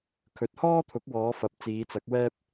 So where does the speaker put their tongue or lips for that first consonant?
velum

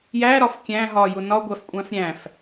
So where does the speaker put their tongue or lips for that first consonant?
palate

